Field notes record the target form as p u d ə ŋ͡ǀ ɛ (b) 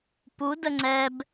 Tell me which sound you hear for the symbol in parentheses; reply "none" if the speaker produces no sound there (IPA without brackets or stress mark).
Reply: b